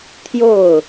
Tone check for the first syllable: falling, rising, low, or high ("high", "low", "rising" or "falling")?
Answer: falling